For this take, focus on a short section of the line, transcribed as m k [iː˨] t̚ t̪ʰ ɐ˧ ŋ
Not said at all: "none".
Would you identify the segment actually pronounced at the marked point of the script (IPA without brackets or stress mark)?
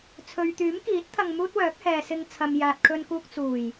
iː˨˥